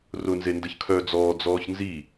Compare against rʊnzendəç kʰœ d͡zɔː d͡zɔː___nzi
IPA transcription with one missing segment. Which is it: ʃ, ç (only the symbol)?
ç